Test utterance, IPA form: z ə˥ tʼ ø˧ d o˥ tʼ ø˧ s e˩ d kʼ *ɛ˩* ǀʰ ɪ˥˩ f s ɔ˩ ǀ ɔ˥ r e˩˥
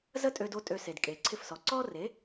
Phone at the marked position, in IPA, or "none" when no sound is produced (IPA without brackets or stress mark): e˩